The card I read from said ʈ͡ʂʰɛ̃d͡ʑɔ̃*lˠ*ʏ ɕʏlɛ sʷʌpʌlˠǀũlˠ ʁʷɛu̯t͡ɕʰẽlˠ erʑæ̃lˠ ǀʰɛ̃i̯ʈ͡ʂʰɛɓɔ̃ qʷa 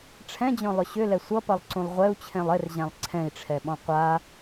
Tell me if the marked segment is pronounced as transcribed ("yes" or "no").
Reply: yes